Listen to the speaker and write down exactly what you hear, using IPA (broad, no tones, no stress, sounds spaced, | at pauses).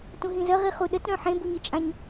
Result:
t ũ ɦ ĩ z ə ʁ i χ u ɗ ə t ɾ œ̃ ħ ẽ b u ɲ ɨ t͡ʃʼ ã ɲ